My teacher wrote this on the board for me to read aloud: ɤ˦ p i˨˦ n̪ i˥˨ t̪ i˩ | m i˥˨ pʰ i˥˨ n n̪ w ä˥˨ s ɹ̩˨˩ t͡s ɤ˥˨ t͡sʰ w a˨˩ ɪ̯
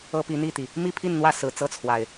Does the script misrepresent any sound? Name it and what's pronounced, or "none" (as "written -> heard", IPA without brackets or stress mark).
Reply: none